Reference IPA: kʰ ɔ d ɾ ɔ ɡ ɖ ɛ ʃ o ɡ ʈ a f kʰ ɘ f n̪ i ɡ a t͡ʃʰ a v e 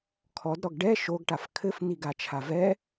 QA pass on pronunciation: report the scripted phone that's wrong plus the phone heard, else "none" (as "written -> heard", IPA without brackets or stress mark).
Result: e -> ɛ